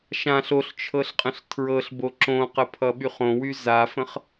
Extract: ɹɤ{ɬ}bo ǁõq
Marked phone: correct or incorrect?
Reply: correct